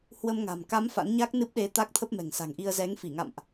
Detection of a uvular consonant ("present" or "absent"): absent